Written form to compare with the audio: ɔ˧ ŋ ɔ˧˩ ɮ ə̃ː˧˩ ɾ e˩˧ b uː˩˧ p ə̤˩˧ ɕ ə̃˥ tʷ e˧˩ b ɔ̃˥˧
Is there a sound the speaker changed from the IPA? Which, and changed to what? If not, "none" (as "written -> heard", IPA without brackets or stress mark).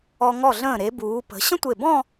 none